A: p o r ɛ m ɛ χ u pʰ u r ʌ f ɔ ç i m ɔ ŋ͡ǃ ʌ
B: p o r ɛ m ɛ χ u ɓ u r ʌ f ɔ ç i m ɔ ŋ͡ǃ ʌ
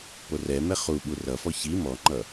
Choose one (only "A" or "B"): B